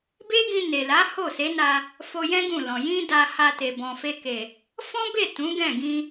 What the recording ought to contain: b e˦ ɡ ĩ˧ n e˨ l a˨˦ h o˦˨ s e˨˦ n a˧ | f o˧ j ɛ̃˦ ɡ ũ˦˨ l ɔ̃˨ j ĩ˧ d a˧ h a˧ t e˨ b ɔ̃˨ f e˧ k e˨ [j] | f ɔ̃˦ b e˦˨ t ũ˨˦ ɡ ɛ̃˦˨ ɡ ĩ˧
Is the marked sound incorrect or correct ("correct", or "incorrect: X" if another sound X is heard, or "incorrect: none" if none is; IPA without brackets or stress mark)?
incorrect: none